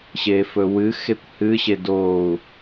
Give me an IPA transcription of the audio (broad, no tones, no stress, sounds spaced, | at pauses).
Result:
ɕ e f ɵ w ɨ x e kʷ h ɨ ɕ e d o u̯